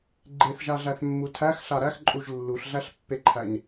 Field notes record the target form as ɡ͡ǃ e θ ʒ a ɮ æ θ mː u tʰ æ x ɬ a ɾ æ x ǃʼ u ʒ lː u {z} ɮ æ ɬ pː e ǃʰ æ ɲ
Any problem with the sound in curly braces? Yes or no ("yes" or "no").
yes